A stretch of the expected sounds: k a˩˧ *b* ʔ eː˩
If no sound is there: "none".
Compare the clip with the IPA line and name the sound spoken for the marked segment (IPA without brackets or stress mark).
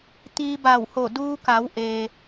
w